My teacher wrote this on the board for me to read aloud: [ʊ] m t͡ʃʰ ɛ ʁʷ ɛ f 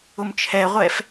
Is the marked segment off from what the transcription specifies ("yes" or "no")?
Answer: no